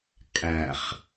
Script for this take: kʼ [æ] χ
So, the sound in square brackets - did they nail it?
yes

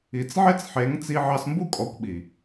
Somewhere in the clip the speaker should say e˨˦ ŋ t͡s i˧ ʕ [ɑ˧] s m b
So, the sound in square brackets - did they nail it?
yes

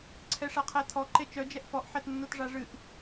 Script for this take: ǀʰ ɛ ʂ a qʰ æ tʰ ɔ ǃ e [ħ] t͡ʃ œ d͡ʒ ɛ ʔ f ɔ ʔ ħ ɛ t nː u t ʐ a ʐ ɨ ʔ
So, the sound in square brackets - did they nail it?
no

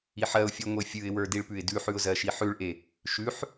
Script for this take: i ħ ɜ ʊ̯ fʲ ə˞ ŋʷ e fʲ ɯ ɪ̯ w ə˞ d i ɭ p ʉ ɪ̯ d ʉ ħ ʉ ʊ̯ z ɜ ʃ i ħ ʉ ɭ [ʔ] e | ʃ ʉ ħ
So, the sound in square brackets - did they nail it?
yes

